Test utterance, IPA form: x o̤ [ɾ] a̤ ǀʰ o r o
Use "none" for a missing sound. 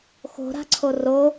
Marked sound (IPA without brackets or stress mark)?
ɾ